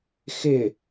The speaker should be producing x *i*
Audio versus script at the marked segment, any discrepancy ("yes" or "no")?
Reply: yes